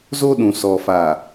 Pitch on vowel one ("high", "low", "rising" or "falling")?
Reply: high